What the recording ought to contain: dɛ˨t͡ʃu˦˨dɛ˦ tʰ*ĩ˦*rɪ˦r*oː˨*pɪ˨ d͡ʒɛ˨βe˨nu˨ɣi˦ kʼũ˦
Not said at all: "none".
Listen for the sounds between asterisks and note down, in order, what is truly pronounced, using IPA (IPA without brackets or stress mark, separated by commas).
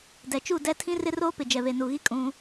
ĩ˦, oː˦